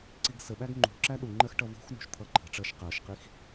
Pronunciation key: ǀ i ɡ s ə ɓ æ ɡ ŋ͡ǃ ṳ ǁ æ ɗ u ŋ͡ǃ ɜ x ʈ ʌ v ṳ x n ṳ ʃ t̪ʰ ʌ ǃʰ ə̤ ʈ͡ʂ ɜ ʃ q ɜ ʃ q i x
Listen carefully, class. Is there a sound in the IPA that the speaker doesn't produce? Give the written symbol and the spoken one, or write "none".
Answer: none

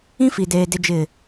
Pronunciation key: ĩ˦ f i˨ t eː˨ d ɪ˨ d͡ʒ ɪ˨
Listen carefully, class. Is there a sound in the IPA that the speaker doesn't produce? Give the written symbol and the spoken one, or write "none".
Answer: t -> d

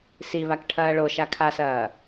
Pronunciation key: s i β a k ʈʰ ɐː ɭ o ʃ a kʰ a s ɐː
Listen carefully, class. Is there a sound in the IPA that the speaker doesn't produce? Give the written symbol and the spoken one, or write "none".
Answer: none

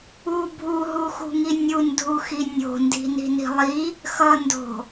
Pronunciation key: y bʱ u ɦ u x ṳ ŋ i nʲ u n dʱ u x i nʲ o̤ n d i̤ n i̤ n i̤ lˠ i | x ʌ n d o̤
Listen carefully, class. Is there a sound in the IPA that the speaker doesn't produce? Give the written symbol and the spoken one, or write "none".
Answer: y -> u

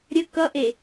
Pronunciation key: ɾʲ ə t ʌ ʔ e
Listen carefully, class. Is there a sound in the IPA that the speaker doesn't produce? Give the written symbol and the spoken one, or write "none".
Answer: t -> k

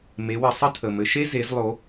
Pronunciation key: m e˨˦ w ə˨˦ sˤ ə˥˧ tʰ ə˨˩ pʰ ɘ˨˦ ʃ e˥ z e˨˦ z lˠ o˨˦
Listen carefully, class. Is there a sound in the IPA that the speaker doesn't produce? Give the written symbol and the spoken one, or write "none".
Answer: pʰ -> m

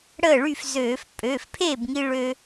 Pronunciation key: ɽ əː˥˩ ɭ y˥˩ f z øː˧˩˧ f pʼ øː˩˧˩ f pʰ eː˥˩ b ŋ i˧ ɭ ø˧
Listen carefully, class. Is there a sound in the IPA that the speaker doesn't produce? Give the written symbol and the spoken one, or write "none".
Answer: none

